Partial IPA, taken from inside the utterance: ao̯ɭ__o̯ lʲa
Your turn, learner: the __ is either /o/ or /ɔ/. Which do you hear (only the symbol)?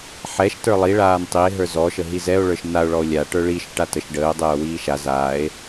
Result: ɔ